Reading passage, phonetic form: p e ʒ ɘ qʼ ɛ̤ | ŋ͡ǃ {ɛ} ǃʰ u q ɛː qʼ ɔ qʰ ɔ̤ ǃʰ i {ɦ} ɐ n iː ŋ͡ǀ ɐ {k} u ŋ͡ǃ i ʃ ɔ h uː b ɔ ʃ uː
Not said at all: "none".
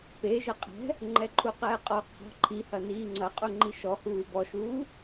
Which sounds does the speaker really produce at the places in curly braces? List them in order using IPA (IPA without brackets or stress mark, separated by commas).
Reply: ɛ, h, qʼ